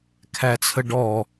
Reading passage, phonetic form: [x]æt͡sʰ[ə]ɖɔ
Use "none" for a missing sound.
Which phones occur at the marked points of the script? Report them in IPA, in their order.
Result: kʰ, ə

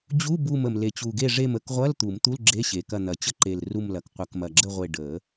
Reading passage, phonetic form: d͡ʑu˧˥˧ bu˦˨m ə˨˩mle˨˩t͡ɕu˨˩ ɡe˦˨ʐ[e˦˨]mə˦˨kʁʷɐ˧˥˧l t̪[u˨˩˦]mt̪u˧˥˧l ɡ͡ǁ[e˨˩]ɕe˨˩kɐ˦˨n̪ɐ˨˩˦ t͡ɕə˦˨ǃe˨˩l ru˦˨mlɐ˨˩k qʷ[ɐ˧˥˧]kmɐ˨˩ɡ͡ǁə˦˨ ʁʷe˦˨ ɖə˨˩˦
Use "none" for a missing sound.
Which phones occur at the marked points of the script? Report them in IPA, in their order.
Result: e˦˨, u˨˩˦, e˧˥˧, ɐ˨˩˦

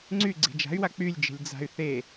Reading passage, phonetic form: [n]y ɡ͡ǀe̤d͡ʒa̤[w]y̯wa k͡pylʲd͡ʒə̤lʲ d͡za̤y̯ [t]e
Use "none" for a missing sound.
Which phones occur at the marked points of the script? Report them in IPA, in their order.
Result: ŋ͡ǀ, none, θ

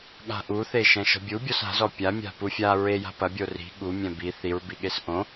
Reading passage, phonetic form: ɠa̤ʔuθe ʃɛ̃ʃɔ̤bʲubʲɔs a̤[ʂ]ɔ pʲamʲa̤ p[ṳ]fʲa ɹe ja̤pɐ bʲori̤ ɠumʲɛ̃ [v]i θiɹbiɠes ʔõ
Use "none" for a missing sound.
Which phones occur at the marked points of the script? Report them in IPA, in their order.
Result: z, u, b

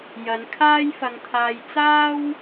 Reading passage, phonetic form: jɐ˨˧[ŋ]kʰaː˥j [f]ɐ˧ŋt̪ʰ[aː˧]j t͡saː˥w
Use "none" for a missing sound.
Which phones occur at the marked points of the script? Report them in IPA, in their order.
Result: n, f, aː˧

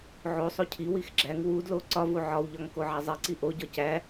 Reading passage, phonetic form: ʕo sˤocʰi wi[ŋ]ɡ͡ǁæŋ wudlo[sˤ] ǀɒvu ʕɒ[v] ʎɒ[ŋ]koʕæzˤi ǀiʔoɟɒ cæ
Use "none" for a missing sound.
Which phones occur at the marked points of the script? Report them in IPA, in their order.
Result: x, none, w, ŋ

